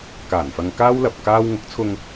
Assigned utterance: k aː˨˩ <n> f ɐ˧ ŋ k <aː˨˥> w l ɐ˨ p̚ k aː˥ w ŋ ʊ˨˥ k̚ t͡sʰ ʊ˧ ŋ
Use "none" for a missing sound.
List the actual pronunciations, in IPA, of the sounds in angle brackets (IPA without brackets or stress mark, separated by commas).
n, aː˥